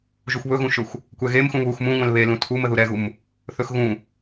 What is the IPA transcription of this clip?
ʒuxʷβɵɣũʃɵxʷ | kʷɛɣemxũ βux mũŋʷɛ̃l βelũ tʰumə ðuɾɛɣum | θɵxɣũ

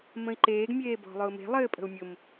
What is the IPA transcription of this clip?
mə̃i̯ǃeːɡ mʲeːbɔ̤lˠʊːme̤ lˠɘːpʼə̤u̯mʲʊm

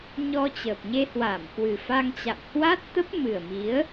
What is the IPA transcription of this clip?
ɲɔ˧ t͡ɕə˨˩p̚ɲe˧hwa˧˩m kwɨ˨˩fa˧ŋt͡ɕa̰˧˨m hwa˦˥t̚t̪ə˦˥p̚ mɨ˨˩ə̯mi˨˦ə̯

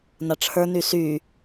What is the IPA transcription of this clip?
naʈ͡ʂʰə˞ny sy

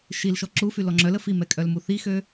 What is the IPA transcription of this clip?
ʃilʃɔ ǁufylɔ ŋ͡ǁœlə fimɛkʼœl muθixø

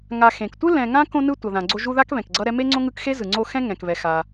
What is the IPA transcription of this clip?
ŋa˨xẽ˩k tʷɯ˥ lɛ̃˨ŋã˥ kõ˦nɯ˦ tʷʌ˩ðã˩ɡ͡ǀo˦ ʒu˦ða˥k βɛ̃˩kɡ͡ǀʌ˦ ɾɛ˦me˥ŋ͡ǀõ˥ŋɯ˦k xe˥zɯ˩ŋ͡ǀo˦xɛ̃˥ ŋɛ̃˩kβɛ˩ xa˩

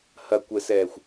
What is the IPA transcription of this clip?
hɐkʷɛsɛːxʷ

